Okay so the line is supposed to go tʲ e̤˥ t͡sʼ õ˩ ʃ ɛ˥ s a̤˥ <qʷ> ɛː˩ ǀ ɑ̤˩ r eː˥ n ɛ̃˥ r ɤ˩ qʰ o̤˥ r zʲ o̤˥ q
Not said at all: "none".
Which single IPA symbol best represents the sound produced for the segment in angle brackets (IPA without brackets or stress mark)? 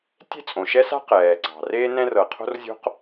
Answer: q